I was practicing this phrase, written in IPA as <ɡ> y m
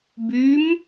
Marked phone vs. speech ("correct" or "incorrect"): incorrect